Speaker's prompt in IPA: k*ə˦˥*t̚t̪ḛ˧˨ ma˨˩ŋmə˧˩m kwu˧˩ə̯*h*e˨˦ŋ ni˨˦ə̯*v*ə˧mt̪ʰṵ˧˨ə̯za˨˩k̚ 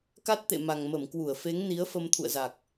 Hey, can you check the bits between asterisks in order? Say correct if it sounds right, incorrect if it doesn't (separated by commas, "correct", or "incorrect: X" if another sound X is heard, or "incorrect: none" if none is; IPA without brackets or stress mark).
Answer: incorrect: a˦˥, incorrect: f, incorrect: f